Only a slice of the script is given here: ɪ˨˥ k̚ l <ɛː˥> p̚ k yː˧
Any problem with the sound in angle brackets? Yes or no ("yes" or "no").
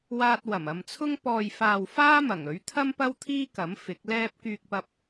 no